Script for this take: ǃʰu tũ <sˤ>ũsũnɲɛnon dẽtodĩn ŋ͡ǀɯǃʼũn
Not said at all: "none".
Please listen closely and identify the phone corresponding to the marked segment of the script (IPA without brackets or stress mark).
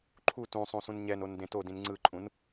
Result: sˤ